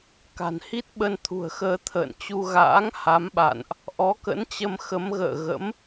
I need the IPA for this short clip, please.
ka̤˨˩nhi˦˥t̚ ɓə˧nt̪ʰṳ˨˩ə̯xəː˧ t̪ʰə̰ː˧˨nt͡ɕu˧ɣa̰ː˧˥ŋ ha˨˦mɓa̰˧˨nʔ | ʔɔ˨˦kə̰˧˥nt͡ɕə˧m xə˨˦mɣə̰ː˧˨ ɣə̰˧˥m

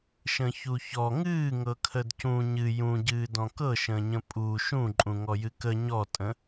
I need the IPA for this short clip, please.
ʃə̃çuçɔ ŋɨːŋɤkʰəd cũ ɲɨ jũɟɨːdɔ̃ kɤʃə̃ːɲə̃ pʼu ʃũǃʼũŋɔjɨ kə ɲɔtʼə̃

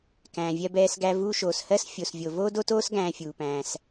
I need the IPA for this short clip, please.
kæ̃ː˩vʲɜ˧bɛː˧s ɡæ˧ vuː˧ʃoː˩s hɜ˥s fʲo˩svʲo˩ voː˥do˥toː˥s ɡæ̃ː˧fʲuː˩pæ̃ː˩s

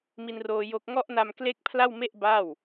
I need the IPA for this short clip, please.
mi˧nroː˧ jo˦˥k̚ ŋɔ˦˥ʔna˧mkle˦˥k̚ pʰla˥˩wme˥˩ʔ ba˥˩w

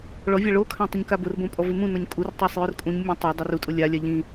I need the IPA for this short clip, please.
ɭɔ vʲaɭokʰã tˤʊɲkabʊrbõ pʼɔvɪmũnɔɲ kʼurtˤosˤ jʊrkʼũɲmʲõ tˤadˤɛr utʼʊ lʲalʲa ʎĩ

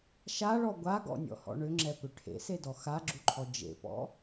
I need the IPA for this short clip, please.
ʃaɭɔ ɡʷaɡɔ̰nʲɔ̰hɔ̰ ɳʏŋ͡ǁɛpʏ ʈʰḛsedɔ xaɡ͡ǁuǃʰɔ d͡ʒḛpɔ̰

